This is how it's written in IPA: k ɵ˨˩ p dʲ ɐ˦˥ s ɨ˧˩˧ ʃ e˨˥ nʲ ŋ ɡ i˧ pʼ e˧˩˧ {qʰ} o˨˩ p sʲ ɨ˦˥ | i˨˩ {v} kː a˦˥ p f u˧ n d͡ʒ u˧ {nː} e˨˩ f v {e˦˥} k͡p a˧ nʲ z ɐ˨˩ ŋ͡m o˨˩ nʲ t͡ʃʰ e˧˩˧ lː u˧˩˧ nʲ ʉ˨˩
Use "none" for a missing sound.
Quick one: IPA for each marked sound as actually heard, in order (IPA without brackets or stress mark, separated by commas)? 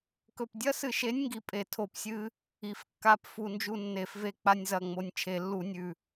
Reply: tʰ, f, nː, e˦˥